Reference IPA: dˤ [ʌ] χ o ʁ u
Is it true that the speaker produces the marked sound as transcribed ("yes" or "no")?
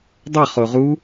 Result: yes